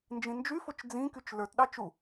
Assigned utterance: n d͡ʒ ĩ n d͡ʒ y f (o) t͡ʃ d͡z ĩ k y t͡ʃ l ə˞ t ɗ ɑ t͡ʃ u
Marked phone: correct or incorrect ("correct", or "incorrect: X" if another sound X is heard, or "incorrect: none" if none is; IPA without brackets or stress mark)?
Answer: correct